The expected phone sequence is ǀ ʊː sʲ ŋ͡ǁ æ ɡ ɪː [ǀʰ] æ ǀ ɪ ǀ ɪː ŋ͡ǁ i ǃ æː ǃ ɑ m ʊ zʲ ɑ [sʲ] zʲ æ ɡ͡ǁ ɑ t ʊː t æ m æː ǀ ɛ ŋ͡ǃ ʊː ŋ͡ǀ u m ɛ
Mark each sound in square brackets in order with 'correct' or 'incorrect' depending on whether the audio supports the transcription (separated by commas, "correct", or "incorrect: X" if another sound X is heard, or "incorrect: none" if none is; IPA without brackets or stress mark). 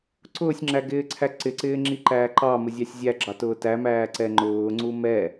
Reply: correct, correct